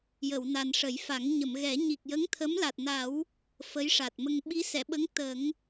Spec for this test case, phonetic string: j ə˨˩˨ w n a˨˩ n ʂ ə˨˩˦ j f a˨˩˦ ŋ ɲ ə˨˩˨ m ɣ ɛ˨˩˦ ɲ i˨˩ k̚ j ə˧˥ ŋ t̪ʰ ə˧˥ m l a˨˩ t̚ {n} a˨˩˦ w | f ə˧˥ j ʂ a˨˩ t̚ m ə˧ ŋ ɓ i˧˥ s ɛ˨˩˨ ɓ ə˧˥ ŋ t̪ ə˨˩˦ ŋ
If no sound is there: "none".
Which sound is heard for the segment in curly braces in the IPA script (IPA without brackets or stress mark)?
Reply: n